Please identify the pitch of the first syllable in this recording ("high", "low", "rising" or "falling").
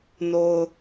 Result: low